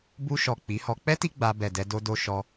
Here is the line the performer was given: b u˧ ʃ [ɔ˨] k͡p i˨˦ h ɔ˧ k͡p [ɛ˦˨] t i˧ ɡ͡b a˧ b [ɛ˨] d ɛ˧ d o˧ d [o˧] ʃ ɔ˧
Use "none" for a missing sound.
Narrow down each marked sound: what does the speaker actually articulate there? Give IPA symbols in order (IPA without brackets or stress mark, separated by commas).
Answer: ɔ˨, ɛ˦, ɛ˨, o˧